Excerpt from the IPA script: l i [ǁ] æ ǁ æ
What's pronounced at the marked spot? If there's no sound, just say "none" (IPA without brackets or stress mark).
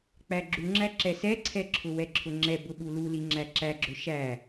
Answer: ŋ͡ǁ